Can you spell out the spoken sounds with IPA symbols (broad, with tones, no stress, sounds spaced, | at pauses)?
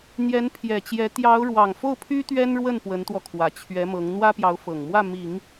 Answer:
n̪ j ɛ˧˥ n pʰ j ɛ˨˩ t͡ɕ j ɛ˧˥ t̪ j ɑ˧˥ ʊ̯ ɻ w ɑ˨˩ ŋ f o˥˩ ʊ̯ pʰ y˥ t̪ ɥ ɛ˥ n ɻ w ə˥˩ n p w ə˧˥ n t̪ w ɔ˧ kʰ w ä˨˩ t͡ɕʰ ɥ ɛ˧˥ m ɤ˧˥ ŋ n̪ w ä˥ p j ɑ˧˥ ʊ̯ f ɤ˨˩ ŋ m w ä˥˩ m i˨˩˦ ŋ